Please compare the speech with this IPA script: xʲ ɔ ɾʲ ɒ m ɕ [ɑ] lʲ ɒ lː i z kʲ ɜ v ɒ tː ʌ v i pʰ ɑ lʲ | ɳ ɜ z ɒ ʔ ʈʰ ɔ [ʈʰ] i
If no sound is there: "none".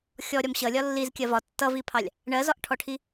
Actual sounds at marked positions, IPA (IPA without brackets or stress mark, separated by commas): ʌ, ʈʰ